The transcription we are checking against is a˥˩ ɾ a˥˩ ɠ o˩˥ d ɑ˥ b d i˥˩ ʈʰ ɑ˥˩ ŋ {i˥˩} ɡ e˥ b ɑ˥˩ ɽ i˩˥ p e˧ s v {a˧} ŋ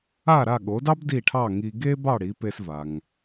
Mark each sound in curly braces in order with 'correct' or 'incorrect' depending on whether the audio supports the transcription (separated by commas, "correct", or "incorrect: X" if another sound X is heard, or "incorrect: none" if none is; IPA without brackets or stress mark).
incorrect: i˧, incorrect: a˩